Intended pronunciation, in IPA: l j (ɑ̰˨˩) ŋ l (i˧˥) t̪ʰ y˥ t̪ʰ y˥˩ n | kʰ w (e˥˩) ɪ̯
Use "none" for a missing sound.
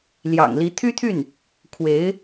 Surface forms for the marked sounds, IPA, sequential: ɑ̰˨˩, i˧˥, e˧˥

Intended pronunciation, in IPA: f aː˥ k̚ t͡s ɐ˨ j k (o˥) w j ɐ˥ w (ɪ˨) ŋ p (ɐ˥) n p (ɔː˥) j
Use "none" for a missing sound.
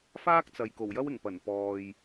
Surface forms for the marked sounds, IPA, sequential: o˨˩, ɪ˨˩, ɐ˨˩, ɔː˨

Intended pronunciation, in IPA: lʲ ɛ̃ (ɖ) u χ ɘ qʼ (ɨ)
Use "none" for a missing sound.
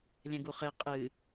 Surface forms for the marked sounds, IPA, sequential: ɡ, ɨ

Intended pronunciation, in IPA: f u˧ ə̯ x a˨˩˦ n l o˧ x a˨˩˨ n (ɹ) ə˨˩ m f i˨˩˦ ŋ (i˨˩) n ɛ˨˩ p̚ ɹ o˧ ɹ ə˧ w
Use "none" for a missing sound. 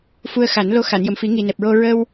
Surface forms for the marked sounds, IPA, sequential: j, i˨˩

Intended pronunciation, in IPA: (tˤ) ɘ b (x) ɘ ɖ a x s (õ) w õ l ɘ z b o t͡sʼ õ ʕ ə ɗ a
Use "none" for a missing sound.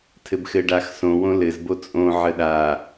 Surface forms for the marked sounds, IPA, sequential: tʰ, x, õ

